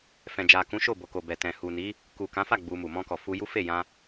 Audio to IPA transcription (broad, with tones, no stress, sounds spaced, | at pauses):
f ɛ̃˨ d͡ʒ a˨ k ũ˨˦ ʃ o˦˨ b o˨ k o˨ b ɛ˨ t ɛ̃˨ h u˨ n i˨˦ | k u˨ k ã˨˦ f a˦˨ ɡ͡b u˧ m u˨ m ɔ̃˧ k ɔ˨ f u˧ j u˦ f e˦˨ j ã˧